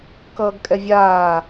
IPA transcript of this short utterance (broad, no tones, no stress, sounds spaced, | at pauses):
k ʌː ɡ kʼ ɛ vʲ aː